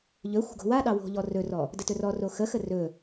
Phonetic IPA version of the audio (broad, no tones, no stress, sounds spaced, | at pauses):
ʎ ɵ xʷ ə̤ ɡ o̤ w a ɗ ɑ w o̤ ʎ ɔ r ɵ r ɔ | d ə t ɵ r ɔ r o x ə x ə r ɵ